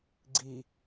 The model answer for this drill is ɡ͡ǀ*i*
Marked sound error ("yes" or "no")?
no